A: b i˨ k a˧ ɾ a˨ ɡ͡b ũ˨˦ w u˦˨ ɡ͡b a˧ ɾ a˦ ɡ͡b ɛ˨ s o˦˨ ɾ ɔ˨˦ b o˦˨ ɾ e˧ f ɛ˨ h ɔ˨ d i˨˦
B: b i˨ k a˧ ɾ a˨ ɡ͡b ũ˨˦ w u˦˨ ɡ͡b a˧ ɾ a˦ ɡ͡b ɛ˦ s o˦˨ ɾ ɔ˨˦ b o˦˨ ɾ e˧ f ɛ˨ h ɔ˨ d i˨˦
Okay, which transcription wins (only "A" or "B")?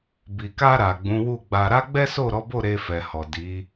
B